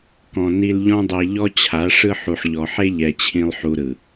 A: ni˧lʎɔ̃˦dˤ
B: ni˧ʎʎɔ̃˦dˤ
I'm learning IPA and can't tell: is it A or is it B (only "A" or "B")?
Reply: A